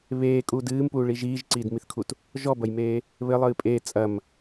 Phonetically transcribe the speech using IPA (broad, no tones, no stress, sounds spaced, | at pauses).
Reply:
β eː kʼ uː d ɨː m p uː ɭ i ʒ iː ʒ ǀ iː d m i θ kʰ u t | ʒ ɔ b ɐ j m eː | β ɘ lˠ ɨː pʼ eː t͡sʼ ɐ m